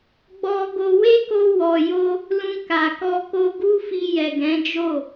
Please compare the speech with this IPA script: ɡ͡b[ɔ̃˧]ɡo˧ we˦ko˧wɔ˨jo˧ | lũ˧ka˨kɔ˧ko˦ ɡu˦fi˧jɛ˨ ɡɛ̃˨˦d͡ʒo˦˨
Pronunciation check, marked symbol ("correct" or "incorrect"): incorrect